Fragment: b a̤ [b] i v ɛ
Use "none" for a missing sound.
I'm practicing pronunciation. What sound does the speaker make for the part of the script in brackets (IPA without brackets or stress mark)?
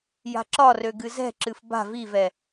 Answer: v